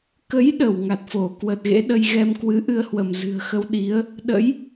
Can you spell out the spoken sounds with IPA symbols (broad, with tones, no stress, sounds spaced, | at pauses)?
k ə˨˦ j ɗ ə˧˩ w ŋ a˨˩ t̚ f o˧˩ k w ə˨˩ t̚ ɣ ḛ˧˥ ɗ ə˧ j ɣ ɛ˧ m k w ɨ˨˦ ʔ ɨ˧ ə̯ h w ə˧˩ m z ɨ̤˨˩ ə̯ x ə˧ w ɗ i˨˦ ə̯ | ɗ ə̰˧˥ j